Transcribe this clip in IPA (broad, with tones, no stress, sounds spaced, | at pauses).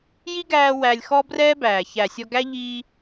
j i˦ ɡ æː˧ w æ˧ lʲ x ɔ˦ b r ɛː˦ b æː˨ ç æ˨ sʲ ɔ˧ ɡ æ˦ ʎ iː˧